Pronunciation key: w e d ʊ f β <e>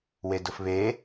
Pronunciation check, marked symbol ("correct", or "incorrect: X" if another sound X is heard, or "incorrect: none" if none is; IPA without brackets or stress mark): correct